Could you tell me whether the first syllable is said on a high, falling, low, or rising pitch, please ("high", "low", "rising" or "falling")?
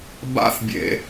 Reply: high